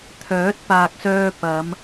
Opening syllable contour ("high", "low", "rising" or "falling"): rising